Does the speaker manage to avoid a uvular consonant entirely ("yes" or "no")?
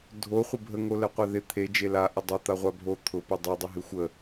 no